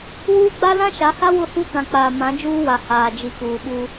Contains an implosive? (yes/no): yes